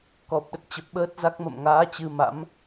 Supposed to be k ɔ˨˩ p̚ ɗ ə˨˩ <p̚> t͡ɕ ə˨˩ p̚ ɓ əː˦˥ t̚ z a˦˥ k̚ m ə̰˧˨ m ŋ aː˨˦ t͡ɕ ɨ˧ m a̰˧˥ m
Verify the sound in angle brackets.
incorrect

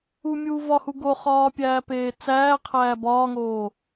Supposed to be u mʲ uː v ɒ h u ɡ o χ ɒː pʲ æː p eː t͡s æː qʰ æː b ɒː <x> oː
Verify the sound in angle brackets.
incorrect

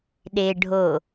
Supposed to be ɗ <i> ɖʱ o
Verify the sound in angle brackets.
incorrect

